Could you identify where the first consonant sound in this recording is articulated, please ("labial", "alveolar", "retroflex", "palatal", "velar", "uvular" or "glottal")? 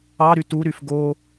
alveolar